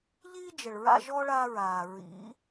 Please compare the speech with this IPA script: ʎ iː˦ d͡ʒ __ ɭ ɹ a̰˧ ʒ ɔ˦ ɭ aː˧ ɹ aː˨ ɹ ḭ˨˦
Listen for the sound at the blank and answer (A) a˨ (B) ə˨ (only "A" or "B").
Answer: B